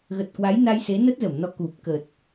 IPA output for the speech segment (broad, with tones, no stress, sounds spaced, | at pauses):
ɣ ə˨˩ t̚ k w a˨˦ j n a˧ j s e˨˦ n ə˦˥ t̚ z ə˧˩ m n ɔ˨˦ k u˨˩ p̚ k ə˨˩ t̚